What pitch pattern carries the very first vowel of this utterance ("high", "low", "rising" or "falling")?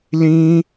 high